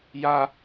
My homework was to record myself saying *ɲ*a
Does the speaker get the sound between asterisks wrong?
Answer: yes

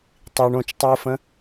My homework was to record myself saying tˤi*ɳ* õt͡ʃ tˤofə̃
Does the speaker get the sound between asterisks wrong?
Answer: no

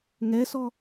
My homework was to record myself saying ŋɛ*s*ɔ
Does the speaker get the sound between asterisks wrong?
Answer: no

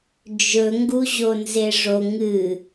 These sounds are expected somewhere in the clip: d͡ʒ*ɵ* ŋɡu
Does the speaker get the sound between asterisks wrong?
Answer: no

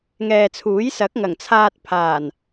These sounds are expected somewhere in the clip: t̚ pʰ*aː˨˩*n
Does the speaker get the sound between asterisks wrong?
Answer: no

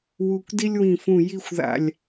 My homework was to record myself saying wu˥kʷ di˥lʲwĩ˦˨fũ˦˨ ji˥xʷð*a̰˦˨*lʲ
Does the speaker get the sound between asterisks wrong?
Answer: no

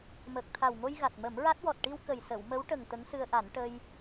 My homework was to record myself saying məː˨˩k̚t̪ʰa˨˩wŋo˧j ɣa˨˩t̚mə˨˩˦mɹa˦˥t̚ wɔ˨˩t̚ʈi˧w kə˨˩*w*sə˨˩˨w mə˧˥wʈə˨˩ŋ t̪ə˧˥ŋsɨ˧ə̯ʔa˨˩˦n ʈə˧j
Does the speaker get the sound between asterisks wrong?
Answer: yes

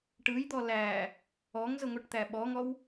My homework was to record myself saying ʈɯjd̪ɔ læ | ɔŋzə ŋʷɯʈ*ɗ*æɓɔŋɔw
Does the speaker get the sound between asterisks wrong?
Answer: yes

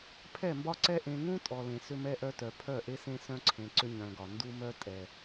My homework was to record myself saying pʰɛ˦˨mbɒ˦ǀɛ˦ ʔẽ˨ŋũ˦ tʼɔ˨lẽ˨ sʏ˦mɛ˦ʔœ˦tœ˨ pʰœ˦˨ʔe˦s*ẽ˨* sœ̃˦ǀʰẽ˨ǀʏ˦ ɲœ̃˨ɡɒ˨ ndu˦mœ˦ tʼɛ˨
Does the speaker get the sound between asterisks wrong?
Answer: yes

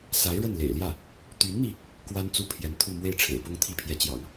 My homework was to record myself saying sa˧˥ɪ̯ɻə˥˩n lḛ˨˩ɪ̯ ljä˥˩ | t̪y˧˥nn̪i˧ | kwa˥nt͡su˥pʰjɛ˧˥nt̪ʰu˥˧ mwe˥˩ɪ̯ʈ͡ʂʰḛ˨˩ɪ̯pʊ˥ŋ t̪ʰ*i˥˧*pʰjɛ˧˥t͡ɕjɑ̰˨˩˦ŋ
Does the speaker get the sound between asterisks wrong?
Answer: yes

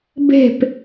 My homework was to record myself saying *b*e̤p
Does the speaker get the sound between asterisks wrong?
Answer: no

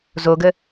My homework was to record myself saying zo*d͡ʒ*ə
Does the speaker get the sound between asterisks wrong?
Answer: yes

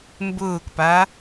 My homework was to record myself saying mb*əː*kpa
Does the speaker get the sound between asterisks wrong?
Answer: yes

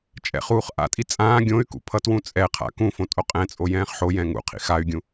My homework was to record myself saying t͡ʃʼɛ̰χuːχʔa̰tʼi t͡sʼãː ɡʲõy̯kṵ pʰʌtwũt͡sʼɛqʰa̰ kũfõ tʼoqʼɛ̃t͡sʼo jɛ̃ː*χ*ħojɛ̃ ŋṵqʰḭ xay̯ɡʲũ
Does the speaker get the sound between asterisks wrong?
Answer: no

